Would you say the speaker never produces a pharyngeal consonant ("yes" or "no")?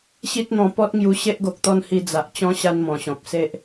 yes